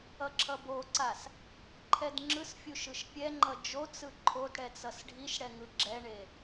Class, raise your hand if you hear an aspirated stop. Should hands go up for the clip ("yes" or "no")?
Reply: yes